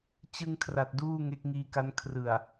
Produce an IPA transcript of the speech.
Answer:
t͡ɕ ɯ˧ ŋ kʰ r a˨˩ t̚ d uː˥˩ ŋ e˦˥ k̚ ŋ iː˧ k a˦˥ n kʰ r ɯ˨˩ a̯

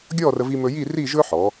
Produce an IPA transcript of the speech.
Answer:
ɡʲ ɔ˥˧ r ə˧ v i˧ m ɵ˧ j i˥˧ r i˥˧ ʒ ɵ˥ ħ ɔ˩˧

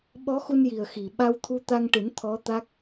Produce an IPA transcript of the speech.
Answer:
ɓ ɔ˧˥ x u˧ n j i˨˩ ə̯ x i˨˩ ɓ a˧ w t̪ʰ u˧ t̪ a˧ ŋ ʈ ɨ˨˩˦ n t̪ʰ ɔ˧˥ t̪ a˦˥ k̚

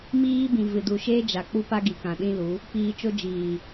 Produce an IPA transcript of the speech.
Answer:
m iː˦ b ĩ˨ v ɨ˨ d u˨ ʃ eː˦ d͡ʒ a˨ k͡p u˦ p a˦ ɡ i˨ k ã˨ ɗ ĩ˦ l u˨˦ | p iː˧ t͡ʃ o˦ d͡ʒ iː˨

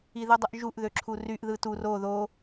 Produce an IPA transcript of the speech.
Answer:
i ð ɯ dˤ ɯ ʔ ʒ u ʔ ð ø ǁʰ u r y ʔ ð ɯ t u r o ð o

